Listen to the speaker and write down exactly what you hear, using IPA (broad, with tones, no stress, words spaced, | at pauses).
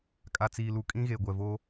kʼa˨t͡siː˨lu˨ kʼĩ˦ɣe˨ ɡʷɛ˨vo˦